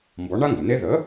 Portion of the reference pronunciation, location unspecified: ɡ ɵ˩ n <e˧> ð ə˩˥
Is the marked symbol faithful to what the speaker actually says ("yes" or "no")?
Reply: no